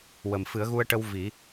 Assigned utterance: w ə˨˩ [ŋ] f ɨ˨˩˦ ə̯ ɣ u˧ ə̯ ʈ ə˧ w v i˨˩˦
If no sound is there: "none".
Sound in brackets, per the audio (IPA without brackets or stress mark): m